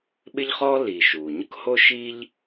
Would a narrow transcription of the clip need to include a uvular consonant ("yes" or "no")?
yes